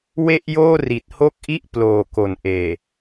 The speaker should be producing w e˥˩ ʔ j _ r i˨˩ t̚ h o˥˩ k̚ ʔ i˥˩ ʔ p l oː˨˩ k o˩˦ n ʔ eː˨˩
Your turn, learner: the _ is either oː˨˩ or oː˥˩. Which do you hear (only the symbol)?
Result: oː˥˩